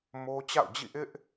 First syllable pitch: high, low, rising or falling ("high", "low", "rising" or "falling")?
high